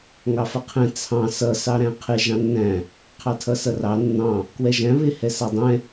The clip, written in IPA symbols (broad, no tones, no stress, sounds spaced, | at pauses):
ŋ ɑ f ʌ qʰ ɛ̃ t͡sʰ ɑ̃ s ʌ s ɑ ɾ æ̃ qʰ ɪ ʒ ɑ̃ nː æ̃ | qʰ ɑ tʰ ʌ s ʌ r ɑ nː ɑ̃ | k w ɛ ʒ æ̃ β ɪ h ɛ s ɑ dˤ ɛ̃